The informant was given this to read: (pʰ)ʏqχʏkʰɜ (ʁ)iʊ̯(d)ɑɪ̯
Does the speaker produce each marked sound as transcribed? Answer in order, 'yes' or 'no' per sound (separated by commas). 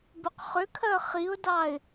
no, no, yes